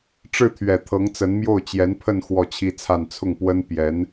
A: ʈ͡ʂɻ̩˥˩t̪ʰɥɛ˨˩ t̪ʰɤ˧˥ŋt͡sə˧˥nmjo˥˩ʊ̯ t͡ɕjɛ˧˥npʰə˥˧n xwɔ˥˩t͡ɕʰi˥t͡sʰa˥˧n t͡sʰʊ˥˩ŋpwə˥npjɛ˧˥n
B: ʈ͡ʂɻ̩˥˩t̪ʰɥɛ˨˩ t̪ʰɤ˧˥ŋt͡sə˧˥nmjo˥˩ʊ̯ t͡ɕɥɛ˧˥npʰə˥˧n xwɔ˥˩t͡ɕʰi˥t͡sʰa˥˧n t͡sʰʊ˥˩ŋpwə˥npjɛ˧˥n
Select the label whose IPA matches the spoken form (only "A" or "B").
A